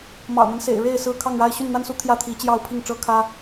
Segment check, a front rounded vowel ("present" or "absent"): present